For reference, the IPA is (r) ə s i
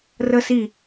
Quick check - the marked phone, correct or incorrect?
correct